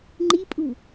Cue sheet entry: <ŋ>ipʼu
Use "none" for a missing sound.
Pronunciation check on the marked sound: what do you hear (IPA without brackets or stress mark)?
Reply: ŋ͡ǃ